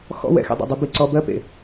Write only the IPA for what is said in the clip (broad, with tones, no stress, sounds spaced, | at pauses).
x ɔ̰˥ w ɛ̰˨˩ x ḛ˧ dˤ ḛ˨˩ dˤ ɜ˧ b i˧ ǀ ɔ˧ b ɜ˥ p ḛ˨˩